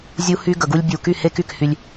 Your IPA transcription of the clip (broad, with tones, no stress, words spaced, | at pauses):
zʲu˦hy˦ ɡə˨ɡu˦lʲ bʲu˨ky˦˨he˦ky˨k hy˦lʲ